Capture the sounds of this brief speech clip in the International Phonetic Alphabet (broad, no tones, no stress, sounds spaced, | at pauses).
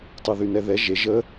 tˤ ɘ ð y n ɛ ð ɛ ʒ e ʒ ə